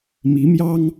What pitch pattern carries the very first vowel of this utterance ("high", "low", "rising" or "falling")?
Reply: rising